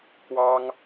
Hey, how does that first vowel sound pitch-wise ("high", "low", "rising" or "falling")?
high